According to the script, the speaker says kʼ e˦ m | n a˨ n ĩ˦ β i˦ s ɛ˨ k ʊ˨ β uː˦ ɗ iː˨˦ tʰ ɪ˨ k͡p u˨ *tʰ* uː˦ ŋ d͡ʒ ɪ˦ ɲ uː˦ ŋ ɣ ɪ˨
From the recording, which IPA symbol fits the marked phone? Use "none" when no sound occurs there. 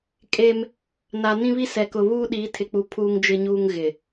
pʰ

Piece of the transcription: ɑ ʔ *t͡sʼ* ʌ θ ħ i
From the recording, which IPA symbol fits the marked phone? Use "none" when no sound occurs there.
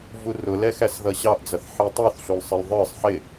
d͡z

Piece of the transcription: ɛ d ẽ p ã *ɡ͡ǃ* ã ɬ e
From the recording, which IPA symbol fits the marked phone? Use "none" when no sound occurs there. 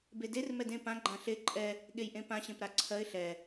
ɡ͡ǃ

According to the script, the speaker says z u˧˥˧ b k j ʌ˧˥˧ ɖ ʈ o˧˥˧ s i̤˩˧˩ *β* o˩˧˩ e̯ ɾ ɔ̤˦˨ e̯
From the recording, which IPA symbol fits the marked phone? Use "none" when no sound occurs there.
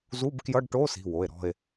w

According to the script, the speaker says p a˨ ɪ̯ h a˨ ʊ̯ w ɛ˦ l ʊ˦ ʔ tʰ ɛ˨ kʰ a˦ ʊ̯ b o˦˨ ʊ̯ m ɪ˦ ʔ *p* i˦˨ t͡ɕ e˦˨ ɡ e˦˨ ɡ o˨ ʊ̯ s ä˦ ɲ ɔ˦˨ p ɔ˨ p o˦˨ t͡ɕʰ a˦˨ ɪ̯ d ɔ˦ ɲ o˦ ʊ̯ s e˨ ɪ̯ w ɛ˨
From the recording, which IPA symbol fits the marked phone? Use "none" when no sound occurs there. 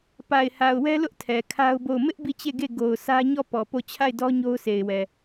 b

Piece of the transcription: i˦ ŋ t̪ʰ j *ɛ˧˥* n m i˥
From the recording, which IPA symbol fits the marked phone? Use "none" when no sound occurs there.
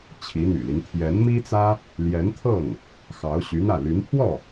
ɛ˧˥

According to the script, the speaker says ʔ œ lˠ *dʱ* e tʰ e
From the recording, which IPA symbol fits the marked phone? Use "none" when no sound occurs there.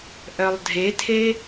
dʱ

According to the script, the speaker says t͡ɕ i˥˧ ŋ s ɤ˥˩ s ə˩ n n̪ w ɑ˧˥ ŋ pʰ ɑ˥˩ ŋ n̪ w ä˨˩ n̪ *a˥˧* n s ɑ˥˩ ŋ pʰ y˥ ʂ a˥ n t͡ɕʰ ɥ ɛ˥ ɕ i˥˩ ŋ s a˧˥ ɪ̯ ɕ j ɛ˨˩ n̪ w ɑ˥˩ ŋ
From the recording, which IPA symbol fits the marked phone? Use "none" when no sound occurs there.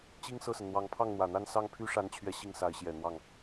a˥˧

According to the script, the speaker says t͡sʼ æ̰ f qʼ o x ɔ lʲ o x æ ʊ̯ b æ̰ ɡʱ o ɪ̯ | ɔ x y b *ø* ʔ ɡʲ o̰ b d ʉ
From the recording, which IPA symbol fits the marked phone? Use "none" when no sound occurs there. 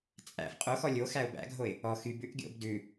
ʉ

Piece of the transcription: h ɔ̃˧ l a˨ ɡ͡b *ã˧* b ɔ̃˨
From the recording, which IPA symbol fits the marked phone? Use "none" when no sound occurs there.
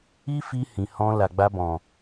a˧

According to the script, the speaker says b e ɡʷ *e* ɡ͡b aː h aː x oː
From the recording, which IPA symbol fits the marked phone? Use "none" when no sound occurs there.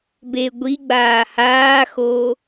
i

